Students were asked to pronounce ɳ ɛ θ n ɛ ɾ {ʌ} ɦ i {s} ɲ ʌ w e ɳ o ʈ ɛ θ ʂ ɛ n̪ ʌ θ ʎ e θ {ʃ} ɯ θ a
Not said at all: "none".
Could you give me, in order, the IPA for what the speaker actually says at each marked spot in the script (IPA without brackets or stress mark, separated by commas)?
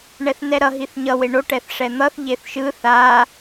ʌ, θ, ʃ